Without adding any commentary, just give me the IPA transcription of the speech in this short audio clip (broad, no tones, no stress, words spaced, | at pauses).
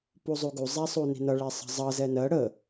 puzˤuɡu zˤæsˤuni̤nʌ ɭɛsˤə̤zˤʌ zɛnɜ ɽə